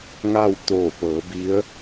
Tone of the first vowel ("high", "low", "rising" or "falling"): falling